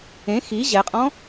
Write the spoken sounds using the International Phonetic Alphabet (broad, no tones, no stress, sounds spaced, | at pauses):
ẽ x i ʑ ɛ qʼ ɔ̃